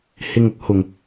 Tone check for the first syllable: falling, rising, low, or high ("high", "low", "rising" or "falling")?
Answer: low